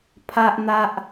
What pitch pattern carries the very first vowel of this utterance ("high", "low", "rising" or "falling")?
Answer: low